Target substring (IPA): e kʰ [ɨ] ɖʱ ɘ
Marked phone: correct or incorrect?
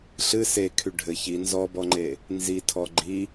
incorrect